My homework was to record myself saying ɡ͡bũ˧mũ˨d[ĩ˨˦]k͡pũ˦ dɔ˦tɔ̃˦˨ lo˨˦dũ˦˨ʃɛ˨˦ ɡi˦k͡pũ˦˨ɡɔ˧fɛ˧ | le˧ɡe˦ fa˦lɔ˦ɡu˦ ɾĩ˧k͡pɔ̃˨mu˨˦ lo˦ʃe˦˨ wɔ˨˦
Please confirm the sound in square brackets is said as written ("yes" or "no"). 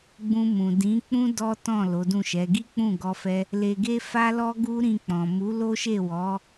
yes